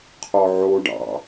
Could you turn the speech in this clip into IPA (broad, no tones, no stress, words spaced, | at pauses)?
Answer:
qʰɔʕoɖɑ̰